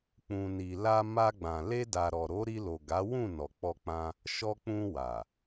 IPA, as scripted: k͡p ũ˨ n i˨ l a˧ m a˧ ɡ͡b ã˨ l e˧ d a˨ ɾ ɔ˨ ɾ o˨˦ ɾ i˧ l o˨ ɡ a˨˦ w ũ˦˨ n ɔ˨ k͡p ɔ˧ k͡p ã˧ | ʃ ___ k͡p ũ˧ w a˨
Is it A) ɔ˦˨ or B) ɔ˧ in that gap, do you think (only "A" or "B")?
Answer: B